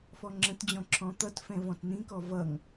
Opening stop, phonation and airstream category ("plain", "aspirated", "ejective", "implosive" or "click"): click